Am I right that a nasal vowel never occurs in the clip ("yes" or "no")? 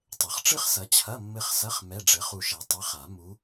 yes